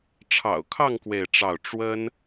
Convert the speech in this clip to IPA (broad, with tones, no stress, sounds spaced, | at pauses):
ʈ͡ʂʰ ɑ̰˨˩ ʊ̯ kʰ ɑ˥˧ ŋ k w e˥˧ ɪ̯ ʈ͡ʂ ɑ˥˩ ʊ̯ ʈ͡ʂ w ə˥ n